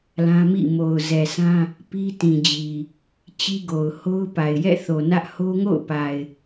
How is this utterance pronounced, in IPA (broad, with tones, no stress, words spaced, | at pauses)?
lã˦mḭ˦˨ mo˨ʊ̯zɛ˨sʰã˦ | pi˦tĩ˨ d͡ʑi˨ | t͡ɕi˦ɡo˨ʊ̯ ho˦ʊ̯pa˨ɪ̯ jɛ̰˦˨θo˨nä˦ʔ ho˦ŋo̰˦˨ʊ̯pa˨ɪ̯